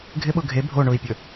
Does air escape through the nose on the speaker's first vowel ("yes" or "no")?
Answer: no